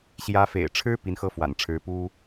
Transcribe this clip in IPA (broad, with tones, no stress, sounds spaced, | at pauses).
ɕ j ä˧˥ f ḛ˨˩ ɪ̯ ʈ͡ʂʰ ɻ̩˥ p i˧˥ n x ɤ˥˩ f w a̰˨˩ n ʈ͡ʂʰ ɻ̩˧˥ p u˥